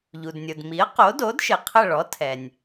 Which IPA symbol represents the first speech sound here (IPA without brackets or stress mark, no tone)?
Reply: ʎ